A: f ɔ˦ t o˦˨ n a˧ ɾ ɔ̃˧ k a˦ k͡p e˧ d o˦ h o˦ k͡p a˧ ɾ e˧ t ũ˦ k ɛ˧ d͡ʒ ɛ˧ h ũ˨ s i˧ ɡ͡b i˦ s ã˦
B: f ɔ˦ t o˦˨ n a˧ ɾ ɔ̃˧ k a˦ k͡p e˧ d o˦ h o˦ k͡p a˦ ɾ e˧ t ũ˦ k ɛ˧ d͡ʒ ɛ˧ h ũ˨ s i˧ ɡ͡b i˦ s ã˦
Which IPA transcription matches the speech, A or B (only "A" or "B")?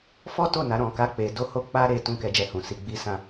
B